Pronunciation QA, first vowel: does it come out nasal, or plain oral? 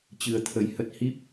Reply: oral